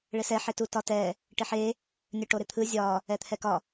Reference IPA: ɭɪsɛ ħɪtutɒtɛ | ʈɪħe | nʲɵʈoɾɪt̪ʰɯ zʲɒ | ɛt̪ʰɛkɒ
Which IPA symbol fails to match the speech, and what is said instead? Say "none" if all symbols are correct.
none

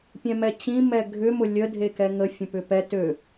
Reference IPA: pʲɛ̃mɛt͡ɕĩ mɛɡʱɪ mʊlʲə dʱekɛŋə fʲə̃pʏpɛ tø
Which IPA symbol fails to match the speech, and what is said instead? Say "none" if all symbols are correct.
ɪ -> ʏ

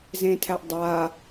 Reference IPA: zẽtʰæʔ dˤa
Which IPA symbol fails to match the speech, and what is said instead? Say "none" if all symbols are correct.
none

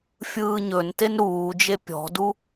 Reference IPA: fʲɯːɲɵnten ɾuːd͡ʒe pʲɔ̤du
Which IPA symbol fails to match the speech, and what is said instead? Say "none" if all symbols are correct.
none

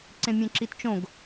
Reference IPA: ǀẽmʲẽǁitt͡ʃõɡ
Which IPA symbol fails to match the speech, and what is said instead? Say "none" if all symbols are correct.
none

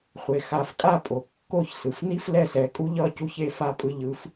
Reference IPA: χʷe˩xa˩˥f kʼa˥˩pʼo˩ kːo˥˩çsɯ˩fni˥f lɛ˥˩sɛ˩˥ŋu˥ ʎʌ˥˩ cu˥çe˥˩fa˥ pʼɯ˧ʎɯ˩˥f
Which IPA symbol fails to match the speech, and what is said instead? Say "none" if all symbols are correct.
ŋ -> kʼ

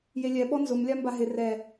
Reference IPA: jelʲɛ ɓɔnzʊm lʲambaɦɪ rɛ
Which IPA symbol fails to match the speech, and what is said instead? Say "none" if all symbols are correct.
none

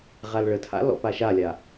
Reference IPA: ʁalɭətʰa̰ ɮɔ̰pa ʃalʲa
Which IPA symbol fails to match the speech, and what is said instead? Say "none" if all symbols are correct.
ɮ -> l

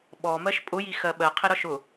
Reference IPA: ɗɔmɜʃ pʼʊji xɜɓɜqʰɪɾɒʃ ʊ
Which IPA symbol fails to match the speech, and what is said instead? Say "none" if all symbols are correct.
ɗ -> ɓ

